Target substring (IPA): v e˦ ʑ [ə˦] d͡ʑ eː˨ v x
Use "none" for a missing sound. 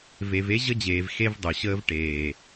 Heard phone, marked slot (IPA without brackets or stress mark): ə˦